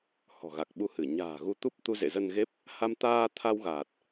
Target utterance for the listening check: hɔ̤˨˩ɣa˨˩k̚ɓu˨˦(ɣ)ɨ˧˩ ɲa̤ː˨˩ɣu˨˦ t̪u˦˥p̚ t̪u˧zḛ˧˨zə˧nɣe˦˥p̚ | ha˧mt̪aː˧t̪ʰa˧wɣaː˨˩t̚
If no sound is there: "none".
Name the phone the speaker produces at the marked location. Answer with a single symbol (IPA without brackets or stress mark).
h